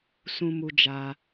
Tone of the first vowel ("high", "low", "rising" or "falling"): high